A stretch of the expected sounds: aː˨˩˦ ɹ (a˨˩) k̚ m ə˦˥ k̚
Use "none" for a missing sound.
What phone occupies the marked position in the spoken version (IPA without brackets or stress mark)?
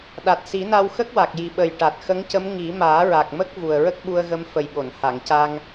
a˨˩